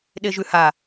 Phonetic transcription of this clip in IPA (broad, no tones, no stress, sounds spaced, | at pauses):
ɗ e ʒ ʉ h a